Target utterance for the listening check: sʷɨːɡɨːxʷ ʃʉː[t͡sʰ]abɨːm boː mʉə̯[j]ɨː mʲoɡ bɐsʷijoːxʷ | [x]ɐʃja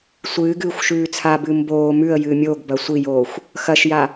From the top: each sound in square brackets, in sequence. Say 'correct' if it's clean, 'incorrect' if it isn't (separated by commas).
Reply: correct, correct, correct